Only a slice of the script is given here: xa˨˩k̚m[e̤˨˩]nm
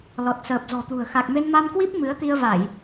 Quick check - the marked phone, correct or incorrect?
incorrect